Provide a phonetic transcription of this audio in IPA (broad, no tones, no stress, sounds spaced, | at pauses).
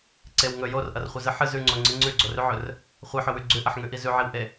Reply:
ǀ e w ŋ ɵ j o r ʔ ɐ r χʷ ɨ z ɨ ħ ɨ z ʉ ŋ͡ǀ o ŋ͡ǀ ɨ ŋ͡ǀ ʉ ɡ͡ǀ o r ʉ ʕ ɵ r | χʷ ɨ ħ ɵ w ʉ ɡ͡ǀ ʉ ʔ ɐ ħ ŋ ʉ ʔ i z ʉ ʕ i w ʔ e